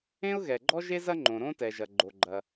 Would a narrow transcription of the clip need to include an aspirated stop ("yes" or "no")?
no